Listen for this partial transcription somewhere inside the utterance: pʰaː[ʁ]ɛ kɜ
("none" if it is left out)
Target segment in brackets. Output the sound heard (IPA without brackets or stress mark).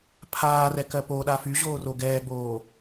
r